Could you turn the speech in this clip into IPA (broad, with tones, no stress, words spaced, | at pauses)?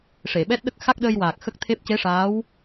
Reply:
ʂe˨˩˨ɓɛ˦˥t̚ ɗə˦˥k̚ xa˦˥k̚ɗəː˧jwaː˨˩k̚ xə˦˥k̚t̪ʰe˦˥p̚ ce˧˥ʂaː˧˥w